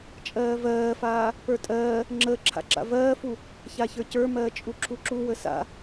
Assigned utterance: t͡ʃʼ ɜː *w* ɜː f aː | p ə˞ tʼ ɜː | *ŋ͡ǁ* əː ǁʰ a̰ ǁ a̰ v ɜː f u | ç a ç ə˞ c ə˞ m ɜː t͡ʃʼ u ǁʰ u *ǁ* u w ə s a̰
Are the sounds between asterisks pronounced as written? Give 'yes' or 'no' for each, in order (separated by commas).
no, yes, yes